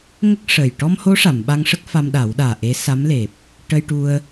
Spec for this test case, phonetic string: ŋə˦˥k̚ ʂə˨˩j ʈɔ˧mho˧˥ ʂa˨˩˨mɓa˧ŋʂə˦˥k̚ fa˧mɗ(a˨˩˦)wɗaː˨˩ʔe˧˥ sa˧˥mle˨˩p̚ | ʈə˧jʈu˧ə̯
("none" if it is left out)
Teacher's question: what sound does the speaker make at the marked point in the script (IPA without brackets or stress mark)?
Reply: a˨˩˦